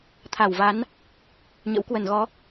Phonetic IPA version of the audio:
t̪ʰ a˧˩ w v a˨˦ n | ɲ ə̰˧˥ w k w ə˧˩ n ɣ ɔ˨˦

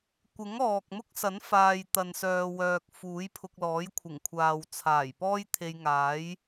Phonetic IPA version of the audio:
kʷ ɪ˨˥ ŋ ɔː˨ k̚ m ʊ˥ k̚ s ɐ˨˥ n f aː˨ j t̪ ɐ˨ n s œː˨ w œː˨ k̚ f uː˨˥ j pʰ ʊ˧ k̚ l ɔː˨˥ j kʷʰ ɪ˨˩ ŋ kʷʰ aː˨ w t͡sʰ aː˨˩ j p ɔː˥ j t̪ʰ e˧ j ŋ aː˨˥ j

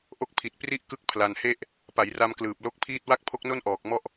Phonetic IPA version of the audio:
ʔ o˦˥ k̚ pʰ i˨˩ t̚ p r i˥˩ ʔ k ɯ˦˥ k̚ pʰ l a˧ n h e˥˩ ʔ | p a˩˦ j r a˧ m k l ɯː˨˩ p̚ l o˦˥ k̚ pʰ iː˥˩ t̚ w a˥˩ k̚ pʰ o˦˥ k̚ n o˥˩ n ʔ ɔː˨˩ k̚ m ɔ˦˥ ʔ

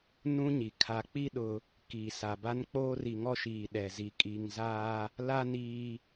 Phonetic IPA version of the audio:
n ũ˦ ɲ i˨ kʰ a˨ k͡p i˦ ɗ ʊ˦ | k iː˨ s a˨ b a˦ n k͡p oː˦ r i˨ ŋ ɔ˦ ʃ iː˨ ɗ ɛ˨ z i˨˦ kʼ i˨ ŋ z aː˦ | l a˦ n iː˦

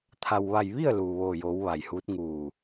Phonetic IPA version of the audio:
t̪ʰ a˩ w ʋ a˧˩ j ʋ i˥˨ ə̯ l uː˩ ʋ oː˧˩ j oː˩˧ w ʋ a˩ j h uː˧˥ t̚ ŋ uː˧˩

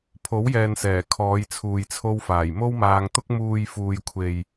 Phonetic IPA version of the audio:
pʰ o˨˥ w j ɛː˨ n s ɛː˨˩ kʰ ɔː˨˧ j t͡sʰ uː˨ j t͡sʰ o˧ w f aː˨˩ j m o˥ w m aː˧ ŋ t̪ ʊ˥ k̚ m uː˨ j f uː˨ j kʷʰ e˨ j

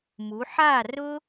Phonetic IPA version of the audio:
m u˩˧ ħ a˥˨ r ʊ˥

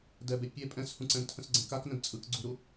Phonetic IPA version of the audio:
d ɛ b e pʲ e pʼ ɛ̃ s h ũ ǀ ɛ̃ n tʰ ə̃ s ɡ͡ǀ ɛ̃ k a k n ə̃ d t͡sʼ ɯ k ɡ͡ǀ u ɾ u

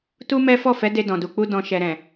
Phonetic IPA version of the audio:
t u˦ m ɛ˦ f ɔ˦˨ f ɛ˨˦ d e˧ d ɔ̃˨ d u˨ k͡p u˧ d ɔ̃˨ ʃ ɛ˨ ɾ ɛ̃˨

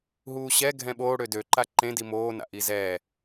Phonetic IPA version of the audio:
ɦ uː ɕ ɛ ɡʱ ɛ̃ ɓ oː ɽ ø d ø ǃ a ǃ ẽ d i m oː n a̰ ʔ i z ɛ

